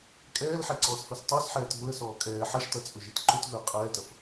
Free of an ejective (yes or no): no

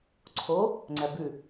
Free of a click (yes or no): no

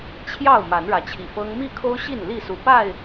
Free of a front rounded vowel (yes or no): yes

